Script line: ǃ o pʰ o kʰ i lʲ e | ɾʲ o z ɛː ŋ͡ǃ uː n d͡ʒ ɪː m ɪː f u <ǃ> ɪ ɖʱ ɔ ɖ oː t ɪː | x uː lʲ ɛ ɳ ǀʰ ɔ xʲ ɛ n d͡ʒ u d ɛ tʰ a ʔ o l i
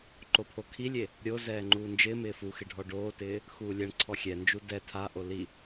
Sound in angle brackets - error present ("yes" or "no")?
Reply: yes